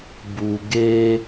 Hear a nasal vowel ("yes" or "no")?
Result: no